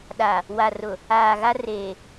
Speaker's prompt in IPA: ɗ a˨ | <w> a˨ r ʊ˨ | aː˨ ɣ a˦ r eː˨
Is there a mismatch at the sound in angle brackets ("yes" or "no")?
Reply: no